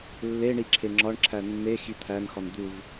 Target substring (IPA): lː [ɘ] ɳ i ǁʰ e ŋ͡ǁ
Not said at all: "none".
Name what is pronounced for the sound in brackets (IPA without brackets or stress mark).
e